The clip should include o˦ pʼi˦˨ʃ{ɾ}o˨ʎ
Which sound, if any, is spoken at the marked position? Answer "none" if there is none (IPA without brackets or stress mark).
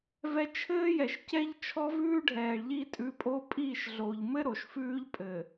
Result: ɮ